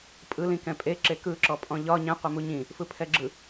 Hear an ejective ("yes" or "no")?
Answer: yes